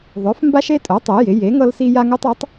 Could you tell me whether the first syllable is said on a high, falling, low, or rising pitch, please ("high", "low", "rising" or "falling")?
rising